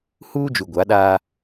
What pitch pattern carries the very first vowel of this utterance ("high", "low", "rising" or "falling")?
high